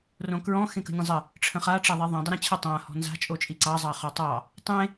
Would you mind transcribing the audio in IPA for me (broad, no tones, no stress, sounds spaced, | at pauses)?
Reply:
r õ k ɹ ɔ̃ x ẽ k ə̤ nʲ ə̃ zˤ ə | ʈ͡ʂʰ ə̃ χ a ʈ͡ʂ a ðˤ i ðˤ ẽ dˤ ə ɾ ẽ t͡ɕʰ ə tˤ ã h ɔ̤ n z a̤ t͡ʃʼ o t͡ʃʼ i ǀ ɑ zˤ ɑ χ ɔ tˤ ɑ | tˤ ẽ